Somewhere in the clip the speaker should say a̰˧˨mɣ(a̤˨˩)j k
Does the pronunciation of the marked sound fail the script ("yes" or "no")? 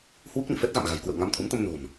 no